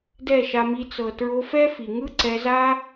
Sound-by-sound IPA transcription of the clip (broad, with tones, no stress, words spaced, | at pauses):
dɛ˦˨ʃa˧mi˧t͡s ɤ˨ tɹo˧fɛ˦ fi˨ŋɯ˦ ǀɛ˧za˦